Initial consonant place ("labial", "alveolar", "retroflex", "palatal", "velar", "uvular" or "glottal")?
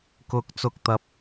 velar